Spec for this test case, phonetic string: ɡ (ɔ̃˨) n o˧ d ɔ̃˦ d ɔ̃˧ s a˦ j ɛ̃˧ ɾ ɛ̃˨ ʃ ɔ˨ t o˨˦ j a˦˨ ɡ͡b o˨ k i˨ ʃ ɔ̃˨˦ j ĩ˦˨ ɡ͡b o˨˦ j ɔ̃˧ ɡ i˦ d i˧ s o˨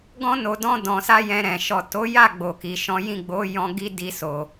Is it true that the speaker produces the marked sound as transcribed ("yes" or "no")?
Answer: no